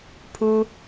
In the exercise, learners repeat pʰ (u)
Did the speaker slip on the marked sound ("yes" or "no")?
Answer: no